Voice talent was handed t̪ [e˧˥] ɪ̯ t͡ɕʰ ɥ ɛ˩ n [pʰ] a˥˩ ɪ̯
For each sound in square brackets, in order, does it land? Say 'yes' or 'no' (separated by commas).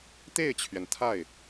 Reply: no, no